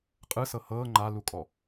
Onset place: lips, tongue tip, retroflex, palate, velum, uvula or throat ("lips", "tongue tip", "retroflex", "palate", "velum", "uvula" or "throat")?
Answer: uvula